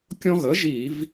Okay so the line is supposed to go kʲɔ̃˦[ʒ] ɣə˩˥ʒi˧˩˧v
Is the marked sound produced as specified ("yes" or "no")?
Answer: no